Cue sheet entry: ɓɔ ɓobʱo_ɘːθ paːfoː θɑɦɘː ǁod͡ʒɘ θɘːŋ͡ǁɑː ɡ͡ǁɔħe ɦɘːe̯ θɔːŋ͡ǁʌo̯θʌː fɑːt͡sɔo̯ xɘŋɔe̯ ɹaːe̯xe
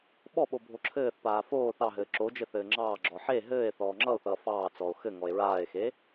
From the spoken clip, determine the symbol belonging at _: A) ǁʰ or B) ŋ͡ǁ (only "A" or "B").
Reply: A